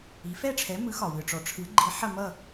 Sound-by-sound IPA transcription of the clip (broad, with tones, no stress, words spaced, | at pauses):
i˩˥ fɛ˥˩ʈ͡ʂʰɛ˩˥ mɯ˩˥xɒ˩wɯ˩ ʈ͡ʂɔ˩ʈ͡ʂʰɯ˩˥ɡ͡ǃi˩˥ ħɐ˥˩mʌ˥˩